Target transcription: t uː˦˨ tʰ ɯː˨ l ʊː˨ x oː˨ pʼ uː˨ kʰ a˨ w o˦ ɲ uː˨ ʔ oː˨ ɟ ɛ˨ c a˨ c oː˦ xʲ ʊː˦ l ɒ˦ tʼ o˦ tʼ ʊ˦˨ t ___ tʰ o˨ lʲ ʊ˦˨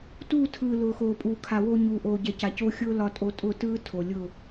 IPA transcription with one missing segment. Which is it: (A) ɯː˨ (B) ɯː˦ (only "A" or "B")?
B